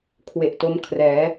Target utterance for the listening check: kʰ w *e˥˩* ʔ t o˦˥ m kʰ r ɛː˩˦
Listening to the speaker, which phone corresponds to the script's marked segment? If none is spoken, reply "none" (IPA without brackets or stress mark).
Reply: e˨˩